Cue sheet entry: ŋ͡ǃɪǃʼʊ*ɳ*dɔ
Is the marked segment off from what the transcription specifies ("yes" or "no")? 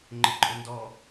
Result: yes